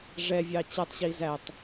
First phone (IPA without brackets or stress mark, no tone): ʐ